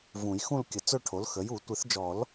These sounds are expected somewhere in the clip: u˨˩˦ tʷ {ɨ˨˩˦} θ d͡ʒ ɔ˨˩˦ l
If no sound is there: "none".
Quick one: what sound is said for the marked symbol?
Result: ɨ˨˩˦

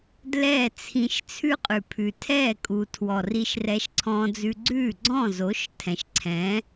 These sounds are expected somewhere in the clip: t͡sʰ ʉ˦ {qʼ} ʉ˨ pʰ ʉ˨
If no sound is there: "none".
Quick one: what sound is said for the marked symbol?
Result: qʼ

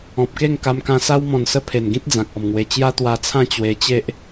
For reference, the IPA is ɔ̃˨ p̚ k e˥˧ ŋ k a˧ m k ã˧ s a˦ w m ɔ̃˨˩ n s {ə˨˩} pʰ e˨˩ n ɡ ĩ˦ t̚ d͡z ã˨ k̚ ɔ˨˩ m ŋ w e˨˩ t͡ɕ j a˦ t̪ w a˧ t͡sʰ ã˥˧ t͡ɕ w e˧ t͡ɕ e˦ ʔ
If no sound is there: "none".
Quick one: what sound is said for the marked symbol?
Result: ə˧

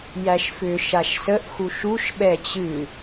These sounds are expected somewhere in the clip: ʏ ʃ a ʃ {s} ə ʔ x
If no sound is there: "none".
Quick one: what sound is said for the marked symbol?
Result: s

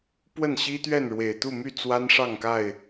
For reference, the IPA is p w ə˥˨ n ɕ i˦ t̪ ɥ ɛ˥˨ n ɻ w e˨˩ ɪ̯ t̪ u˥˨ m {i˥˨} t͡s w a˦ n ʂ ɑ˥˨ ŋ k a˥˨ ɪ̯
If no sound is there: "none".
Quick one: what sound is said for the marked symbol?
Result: y˥˨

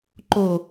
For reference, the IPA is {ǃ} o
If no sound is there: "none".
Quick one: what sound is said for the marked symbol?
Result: ǃ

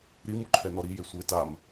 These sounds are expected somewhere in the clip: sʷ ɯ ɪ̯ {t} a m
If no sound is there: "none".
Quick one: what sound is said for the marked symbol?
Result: t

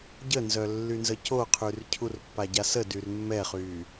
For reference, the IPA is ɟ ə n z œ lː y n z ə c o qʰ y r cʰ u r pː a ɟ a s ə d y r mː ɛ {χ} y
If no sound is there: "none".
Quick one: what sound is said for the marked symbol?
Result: χ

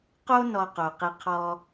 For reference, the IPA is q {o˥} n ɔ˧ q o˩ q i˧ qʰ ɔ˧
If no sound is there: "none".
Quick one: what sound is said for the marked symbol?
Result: o˥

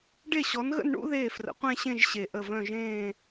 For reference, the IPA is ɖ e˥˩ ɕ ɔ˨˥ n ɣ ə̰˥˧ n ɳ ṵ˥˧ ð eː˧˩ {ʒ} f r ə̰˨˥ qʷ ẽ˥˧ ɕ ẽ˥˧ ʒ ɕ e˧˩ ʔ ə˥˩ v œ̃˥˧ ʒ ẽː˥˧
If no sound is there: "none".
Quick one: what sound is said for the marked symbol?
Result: none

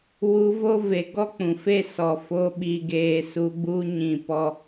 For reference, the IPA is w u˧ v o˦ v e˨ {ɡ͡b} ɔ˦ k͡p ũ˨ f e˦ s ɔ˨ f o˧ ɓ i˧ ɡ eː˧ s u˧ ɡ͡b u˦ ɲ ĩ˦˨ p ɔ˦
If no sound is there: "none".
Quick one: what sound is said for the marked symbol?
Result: ɡ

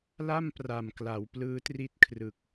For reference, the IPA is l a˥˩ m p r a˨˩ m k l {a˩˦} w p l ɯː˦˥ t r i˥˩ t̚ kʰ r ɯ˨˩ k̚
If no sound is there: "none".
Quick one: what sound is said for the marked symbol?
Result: a˩˦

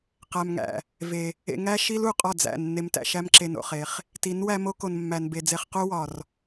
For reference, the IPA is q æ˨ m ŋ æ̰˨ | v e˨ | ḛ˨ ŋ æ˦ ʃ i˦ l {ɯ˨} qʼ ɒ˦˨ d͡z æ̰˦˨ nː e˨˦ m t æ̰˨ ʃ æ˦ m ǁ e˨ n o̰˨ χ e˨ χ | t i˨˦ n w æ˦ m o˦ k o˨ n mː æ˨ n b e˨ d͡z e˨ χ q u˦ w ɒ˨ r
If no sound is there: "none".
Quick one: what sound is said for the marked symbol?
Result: u˨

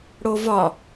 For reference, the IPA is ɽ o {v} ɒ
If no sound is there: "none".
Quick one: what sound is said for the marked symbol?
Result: v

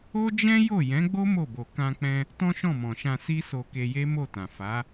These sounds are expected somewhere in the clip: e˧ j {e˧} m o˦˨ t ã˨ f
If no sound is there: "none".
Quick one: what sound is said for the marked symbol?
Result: e˦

